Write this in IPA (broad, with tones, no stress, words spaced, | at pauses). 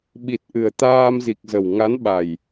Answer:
ɓi˨˩t̚ ʔɨ˨˩ə̯t̪aː˧mzi˨˩k̚zə˨˩w ŋa˨˦nɓa˨˩j